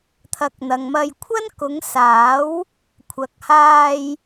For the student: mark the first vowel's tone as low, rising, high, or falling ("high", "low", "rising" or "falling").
rising